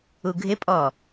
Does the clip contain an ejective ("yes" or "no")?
yes